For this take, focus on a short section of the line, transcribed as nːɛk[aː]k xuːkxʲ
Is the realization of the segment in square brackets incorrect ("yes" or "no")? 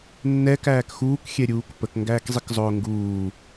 yes